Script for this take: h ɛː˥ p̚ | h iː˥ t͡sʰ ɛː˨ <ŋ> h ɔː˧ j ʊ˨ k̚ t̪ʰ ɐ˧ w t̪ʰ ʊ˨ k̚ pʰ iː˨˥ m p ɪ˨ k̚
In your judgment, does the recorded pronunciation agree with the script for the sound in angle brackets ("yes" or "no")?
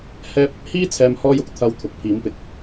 no